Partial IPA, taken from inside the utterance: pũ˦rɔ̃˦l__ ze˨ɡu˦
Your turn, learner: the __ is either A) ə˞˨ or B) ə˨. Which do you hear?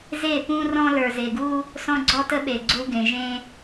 A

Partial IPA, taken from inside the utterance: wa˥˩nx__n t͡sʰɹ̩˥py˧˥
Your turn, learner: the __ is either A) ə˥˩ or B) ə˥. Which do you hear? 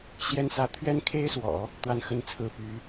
B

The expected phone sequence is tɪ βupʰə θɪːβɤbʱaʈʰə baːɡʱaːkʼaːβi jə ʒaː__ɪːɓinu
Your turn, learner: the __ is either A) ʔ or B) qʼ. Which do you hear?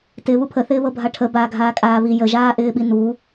A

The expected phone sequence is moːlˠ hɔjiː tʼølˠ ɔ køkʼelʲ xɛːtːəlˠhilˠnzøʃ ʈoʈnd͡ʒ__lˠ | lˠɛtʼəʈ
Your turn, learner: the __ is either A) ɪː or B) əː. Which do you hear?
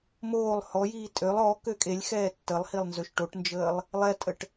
B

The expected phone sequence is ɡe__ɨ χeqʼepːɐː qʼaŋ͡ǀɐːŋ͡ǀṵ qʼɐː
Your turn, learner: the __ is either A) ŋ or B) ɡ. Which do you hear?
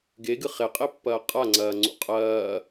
B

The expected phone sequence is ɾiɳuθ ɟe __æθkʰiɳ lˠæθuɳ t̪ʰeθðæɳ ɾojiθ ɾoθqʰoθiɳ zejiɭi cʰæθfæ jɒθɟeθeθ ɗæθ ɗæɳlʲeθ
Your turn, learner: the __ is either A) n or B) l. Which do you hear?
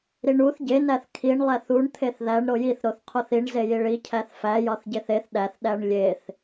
A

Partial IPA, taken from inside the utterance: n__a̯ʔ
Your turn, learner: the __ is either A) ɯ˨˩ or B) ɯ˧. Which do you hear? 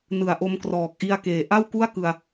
A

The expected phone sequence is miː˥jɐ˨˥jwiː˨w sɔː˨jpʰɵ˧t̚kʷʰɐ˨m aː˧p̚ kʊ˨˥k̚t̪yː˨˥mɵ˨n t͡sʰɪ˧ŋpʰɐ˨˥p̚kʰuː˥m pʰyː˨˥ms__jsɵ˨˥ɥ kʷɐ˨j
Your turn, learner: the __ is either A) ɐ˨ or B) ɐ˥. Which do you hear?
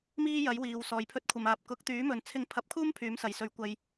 A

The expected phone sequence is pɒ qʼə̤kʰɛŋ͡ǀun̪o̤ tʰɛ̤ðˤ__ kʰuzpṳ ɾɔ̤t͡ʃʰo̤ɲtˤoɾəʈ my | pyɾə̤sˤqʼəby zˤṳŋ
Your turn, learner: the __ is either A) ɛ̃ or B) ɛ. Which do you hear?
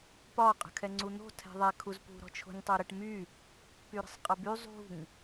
B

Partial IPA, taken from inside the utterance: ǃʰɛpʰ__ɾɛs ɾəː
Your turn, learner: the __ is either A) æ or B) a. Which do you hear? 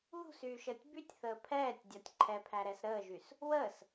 A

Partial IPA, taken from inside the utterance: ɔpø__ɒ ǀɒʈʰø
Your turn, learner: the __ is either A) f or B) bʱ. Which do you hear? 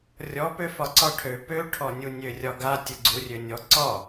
A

